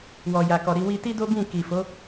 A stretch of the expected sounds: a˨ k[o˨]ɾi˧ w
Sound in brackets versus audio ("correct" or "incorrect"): incorrect